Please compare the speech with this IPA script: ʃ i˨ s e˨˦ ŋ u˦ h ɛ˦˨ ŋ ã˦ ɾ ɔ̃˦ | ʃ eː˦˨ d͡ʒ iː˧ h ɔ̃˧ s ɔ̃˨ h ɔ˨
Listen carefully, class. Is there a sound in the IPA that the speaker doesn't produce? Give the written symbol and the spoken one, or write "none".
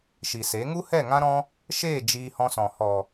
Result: none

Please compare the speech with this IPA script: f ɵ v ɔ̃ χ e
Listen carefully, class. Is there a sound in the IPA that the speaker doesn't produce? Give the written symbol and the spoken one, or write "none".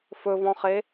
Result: none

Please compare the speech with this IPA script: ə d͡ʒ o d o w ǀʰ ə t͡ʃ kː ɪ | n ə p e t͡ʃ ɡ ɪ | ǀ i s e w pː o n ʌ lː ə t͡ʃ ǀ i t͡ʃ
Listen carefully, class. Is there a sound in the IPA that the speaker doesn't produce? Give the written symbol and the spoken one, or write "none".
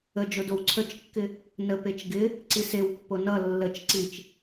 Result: none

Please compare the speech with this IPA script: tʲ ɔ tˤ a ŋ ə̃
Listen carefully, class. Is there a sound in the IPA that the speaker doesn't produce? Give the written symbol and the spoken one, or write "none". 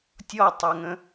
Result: none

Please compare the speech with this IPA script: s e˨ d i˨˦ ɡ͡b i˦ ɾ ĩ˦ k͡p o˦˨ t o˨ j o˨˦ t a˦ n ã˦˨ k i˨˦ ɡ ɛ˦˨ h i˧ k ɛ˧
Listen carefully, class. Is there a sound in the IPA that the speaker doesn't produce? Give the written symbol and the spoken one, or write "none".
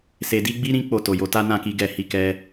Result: none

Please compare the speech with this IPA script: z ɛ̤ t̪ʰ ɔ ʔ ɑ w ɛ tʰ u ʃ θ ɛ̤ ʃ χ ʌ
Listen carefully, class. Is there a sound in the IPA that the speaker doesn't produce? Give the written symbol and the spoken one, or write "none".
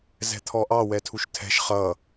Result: θ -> tʰ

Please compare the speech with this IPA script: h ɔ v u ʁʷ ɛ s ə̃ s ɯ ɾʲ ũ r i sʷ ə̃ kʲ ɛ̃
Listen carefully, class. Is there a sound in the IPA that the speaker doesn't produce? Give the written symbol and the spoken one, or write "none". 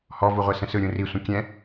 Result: none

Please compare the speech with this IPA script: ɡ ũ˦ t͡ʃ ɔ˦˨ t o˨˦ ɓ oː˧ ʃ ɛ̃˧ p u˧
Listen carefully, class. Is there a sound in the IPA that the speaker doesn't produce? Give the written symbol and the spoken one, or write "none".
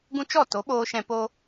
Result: u˧ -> o˧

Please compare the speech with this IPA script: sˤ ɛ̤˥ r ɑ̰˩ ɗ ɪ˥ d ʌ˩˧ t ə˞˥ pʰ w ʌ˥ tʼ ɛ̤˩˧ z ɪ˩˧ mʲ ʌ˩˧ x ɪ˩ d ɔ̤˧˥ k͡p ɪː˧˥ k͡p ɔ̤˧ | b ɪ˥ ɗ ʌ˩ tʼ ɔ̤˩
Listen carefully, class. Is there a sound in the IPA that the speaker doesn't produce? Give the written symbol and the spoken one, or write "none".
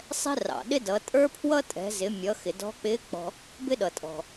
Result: t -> tʼ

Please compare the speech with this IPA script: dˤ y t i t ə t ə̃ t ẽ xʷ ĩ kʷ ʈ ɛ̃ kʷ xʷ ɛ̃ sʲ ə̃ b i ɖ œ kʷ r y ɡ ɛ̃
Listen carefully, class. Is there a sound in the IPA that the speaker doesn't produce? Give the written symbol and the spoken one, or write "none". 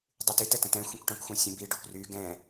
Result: ẽ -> ɛ̃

